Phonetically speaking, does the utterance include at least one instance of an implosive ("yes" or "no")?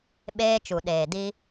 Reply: yes